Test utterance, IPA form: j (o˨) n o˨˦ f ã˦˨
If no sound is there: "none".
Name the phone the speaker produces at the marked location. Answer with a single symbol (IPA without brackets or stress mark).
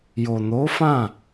o˨